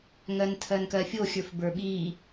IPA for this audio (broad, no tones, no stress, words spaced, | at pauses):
ŋɜntʰɜnkɜfʲo xʲə˞fbə˞ɓi